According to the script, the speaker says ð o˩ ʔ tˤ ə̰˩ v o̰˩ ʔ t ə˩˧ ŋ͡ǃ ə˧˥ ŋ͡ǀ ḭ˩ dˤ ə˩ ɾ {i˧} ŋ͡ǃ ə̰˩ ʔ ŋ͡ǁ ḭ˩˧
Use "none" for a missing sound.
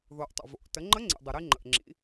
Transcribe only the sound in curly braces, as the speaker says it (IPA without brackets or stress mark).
i˧